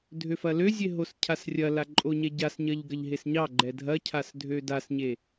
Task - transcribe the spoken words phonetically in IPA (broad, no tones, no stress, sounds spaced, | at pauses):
dʱ ø f ɐ l ø zʲ e ɦ o s cʰ a s rʲ ɐ l a ǃʼ o ɲ ɛ ɟ a s ɲ ɐ ʎ ɡ ɐ ʎ ɦ e s ɲ ɑ ɡ͡ǃ ɛ dʱ ɐ cʰ a s dʱ ø d a s ɲ e